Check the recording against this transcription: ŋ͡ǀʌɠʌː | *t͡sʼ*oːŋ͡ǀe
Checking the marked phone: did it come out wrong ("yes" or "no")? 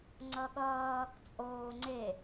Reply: no